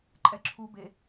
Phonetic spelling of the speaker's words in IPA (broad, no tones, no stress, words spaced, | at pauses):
ǃʼɛǁʰu be